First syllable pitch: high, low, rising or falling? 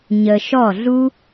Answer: low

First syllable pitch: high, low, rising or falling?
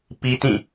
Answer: high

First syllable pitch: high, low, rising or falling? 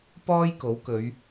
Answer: high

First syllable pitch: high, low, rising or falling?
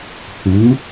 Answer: rising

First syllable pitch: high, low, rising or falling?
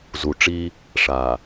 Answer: low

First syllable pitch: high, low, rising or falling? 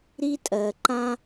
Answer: high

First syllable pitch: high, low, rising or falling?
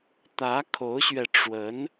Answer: rising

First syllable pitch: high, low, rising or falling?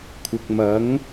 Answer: low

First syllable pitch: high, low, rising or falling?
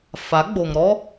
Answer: rising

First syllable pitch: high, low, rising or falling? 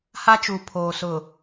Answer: high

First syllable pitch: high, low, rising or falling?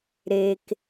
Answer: low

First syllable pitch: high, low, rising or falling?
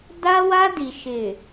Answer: high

